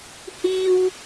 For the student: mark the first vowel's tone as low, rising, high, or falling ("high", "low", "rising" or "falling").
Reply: high